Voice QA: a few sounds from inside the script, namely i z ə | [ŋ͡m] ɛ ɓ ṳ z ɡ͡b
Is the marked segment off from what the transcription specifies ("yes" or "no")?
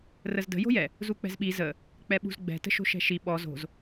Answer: yes